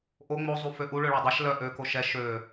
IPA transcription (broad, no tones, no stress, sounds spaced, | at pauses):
ʔ o ŋ͡m o zˤ u f ø ʔ u ɭ ø ɭ œ dˤ ɛ ʃ l œ ʔ ø k o ʃ ɛ ʃ ø